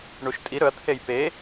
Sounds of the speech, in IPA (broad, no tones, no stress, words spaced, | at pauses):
ɳuʃtʼi ɾɵɐ̯t̪ʰej pe